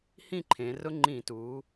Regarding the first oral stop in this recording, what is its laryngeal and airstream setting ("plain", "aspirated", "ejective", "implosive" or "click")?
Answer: click